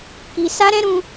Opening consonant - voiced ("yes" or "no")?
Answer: no